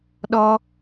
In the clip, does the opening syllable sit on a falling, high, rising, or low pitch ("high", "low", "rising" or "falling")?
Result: high